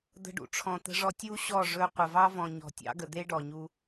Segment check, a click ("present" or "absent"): absent